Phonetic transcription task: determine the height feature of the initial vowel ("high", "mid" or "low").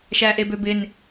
low